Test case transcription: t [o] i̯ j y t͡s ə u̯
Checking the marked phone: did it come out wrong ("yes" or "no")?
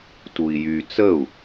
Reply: yes